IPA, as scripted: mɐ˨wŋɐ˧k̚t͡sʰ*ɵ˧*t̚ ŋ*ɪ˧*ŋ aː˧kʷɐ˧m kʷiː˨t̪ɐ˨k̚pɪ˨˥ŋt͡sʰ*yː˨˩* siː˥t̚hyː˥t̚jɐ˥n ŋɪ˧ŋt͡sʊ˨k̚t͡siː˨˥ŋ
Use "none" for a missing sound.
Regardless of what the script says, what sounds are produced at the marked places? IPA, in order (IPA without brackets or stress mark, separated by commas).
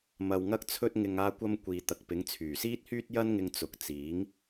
ɵ˧, ɪ˧, yː˨˩